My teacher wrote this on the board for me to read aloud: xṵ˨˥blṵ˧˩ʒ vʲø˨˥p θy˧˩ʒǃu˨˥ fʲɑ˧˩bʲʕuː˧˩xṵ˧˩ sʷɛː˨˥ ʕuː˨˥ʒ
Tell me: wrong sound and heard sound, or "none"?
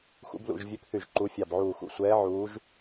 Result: bʲ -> b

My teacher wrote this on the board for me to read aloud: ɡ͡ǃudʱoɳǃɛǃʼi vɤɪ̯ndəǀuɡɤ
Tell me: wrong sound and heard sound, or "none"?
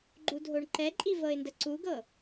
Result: none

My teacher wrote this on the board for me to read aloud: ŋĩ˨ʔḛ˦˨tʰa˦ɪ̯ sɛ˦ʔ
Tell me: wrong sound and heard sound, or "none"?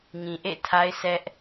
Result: none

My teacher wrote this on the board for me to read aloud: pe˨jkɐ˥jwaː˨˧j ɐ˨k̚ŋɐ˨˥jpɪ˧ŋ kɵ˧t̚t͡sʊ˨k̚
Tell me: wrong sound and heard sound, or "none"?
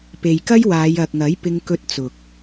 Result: none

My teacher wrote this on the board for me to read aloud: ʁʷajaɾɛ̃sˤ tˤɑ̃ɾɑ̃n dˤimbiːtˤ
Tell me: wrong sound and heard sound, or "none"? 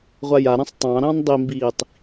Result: none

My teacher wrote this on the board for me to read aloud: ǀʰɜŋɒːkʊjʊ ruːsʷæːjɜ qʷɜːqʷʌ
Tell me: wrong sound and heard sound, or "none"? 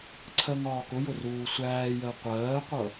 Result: none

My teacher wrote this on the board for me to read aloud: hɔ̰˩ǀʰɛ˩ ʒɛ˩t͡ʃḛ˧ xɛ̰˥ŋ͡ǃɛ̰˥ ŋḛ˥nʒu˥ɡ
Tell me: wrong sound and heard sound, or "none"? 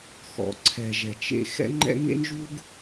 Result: h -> x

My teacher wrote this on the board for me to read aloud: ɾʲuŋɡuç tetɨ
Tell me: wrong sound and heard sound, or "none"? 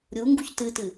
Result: e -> ɨ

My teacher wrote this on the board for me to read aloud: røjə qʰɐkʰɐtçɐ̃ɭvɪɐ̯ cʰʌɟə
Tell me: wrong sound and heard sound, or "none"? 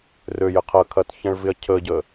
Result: ʌ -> ə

